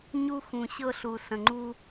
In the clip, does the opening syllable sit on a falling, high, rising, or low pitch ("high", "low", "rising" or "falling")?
high